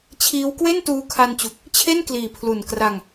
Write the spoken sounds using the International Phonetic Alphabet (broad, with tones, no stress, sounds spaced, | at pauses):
t͡ɕʰ iː˦˥ w k w e˥˩ n t uː˧ kʰ a˧ n t͡ɕ u˨˩ k̚ | t͡ɕʰ e˥˩ n k l iː˨˩ pʰ l u˨˩ n k r a˧ ŋ